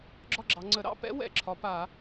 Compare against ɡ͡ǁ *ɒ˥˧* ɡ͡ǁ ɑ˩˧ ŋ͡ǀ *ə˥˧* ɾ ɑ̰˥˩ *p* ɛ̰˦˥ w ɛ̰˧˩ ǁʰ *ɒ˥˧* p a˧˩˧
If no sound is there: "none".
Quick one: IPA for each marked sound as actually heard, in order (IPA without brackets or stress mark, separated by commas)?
ɒ˥˧, ə˧˩˧, p, ɒ˩˧